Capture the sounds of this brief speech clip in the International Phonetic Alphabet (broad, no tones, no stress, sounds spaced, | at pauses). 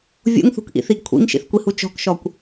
vʲ ṵ ŋ θ ṳ k ʔ ḭ θ i ɡ kʷʰ ḭ ŋ ʃ ḭ θ kʷ i h u t͡ʃ ɔ̤ k ʃ ɔ kʷ